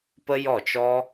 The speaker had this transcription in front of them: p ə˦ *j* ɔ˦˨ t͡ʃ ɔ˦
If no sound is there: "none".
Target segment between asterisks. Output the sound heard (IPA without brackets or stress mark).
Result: j